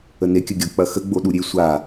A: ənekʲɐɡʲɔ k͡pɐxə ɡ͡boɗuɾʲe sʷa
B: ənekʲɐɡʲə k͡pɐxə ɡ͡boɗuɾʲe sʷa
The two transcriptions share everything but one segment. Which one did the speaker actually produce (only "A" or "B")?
A